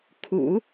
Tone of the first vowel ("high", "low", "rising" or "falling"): low